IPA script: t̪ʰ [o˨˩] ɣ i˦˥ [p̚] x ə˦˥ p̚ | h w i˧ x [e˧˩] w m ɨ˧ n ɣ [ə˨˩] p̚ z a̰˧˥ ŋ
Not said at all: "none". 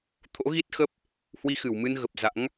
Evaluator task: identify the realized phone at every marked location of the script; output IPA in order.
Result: o̰˧˥, t̚, ɨ˧˩, ə˨˩

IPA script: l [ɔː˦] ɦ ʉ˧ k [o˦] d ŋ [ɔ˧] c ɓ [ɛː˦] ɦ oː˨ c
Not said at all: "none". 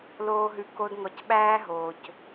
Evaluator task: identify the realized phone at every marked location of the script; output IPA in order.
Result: oː˦, o˦, ɔ˧, æː˦

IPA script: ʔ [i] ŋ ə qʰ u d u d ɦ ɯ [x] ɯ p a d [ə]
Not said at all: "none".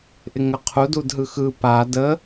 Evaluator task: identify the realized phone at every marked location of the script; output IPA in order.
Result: ɪ, x, ə

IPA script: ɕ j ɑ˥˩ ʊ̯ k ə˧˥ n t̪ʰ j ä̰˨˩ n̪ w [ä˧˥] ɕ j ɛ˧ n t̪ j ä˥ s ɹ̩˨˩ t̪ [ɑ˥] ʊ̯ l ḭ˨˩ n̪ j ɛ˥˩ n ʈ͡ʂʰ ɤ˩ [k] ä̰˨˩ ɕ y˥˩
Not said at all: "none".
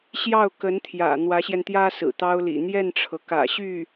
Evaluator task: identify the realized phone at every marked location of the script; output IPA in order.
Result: ä˧˥, ɑ˥, k

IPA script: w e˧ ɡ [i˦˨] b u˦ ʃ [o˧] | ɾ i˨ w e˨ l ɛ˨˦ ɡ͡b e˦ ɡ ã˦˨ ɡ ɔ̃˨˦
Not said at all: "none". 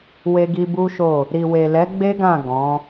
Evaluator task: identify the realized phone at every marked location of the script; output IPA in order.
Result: i˧, o˦˨

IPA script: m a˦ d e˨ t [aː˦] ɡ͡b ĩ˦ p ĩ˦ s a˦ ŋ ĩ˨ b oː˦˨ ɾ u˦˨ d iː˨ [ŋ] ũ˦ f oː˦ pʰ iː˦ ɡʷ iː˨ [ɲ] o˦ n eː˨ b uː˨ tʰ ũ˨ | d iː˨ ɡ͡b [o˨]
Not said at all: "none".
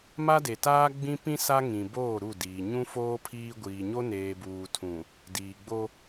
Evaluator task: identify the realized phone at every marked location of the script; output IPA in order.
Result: aː˦, ɲ, ɲ, o˦

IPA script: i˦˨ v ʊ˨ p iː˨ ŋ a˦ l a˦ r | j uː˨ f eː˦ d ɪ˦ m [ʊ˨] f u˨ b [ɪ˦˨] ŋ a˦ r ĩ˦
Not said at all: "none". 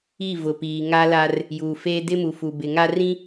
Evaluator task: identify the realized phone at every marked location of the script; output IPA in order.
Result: u˨, ɪ˨

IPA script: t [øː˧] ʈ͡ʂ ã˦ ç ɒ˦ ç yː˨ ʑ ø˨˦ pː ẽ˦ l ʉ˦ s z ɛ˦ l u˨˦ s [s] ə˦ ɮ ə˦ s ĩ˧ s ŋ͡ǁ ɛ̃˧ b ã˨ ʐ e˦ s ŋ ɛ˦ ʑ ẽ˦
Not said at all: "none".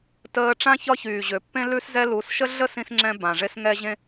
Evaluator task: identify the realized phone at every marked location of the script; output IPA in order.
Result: əː˧, ʃ

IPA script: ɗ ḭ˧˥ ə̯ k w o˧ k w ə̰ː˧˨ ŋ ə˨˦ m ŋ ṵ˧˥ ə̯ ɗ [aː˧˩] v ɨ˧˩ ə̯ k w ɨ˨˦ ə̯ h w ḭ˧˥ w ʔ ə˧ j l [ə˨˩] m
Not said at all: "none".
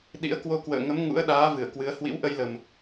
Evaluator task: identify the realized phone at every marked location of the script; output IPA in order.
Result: aː˨˦, ə˨˩

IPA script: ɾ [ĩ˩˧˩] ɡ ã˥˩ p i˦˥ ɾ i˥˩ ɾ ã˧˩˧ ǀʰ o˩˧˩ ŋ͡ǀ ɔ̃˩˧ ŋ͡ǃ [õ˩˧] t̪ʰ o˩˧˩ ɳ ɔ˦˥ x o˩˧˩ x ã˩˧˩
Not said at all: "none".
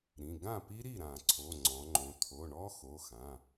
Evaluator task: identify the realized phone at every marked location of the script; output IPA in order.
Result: ĩ˩˧˩, õ˩˧

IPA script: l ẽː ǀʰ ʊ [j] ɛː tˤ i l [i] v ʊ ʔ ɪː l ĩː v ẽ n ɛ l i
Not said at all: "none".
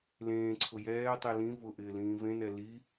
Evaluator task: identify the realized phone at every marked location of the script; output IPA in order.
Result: j, ĩ

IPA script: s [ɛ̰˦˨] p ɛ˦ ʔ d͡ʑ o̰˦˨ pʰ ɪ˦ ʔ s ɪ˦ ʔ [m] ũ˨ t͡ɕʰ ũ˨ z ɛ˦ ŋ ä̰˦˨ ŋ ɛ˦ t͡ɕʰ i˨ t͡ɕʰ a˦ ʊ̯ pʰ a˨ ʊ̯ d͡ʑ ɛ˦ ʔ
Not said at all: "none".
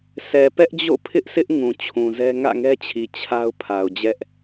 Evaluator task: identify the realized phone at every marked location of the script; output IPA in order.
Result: ɛ˨, ŋ

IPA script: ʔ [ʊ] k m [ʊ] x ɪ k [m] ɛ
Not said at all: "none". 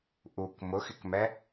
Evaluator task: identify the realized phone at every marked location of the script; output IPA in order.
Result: u, ʊ, m

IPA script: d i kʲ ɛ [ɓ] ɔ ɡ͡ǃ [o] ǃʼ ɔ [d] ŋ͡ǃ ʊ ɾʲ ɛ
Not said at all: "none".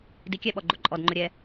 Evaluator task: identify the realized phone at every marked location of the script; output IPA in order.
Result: ɓ, o, d

